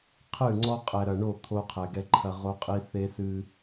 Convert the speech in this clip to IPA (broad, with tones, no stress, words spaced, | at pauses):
qʰɨ˦˨ŋ͡ǀɔ˦ qʼɛ˨ɾɐ˨ɳo˦˨ t̪ʰo˦qʰɛ˨ɡɛ˦ǃʰɐ˦ ʁo˦qʼi˦ θe˦ sɨ˦